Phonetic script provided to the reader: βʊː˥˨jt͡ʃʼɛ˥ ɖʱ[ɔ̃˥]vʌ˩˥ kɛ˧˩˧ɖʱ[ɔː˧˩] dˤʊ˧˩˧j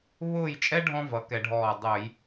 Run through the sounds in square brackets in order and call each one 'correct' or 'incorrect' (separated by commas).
correct, correct